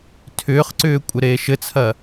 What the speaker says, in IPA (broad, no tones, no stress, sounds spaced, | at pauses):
tʰ ʏː χ ǀ ʏː kʷʼ ɘ ɾ eː ʃ ɘ t͡sʰ ɐ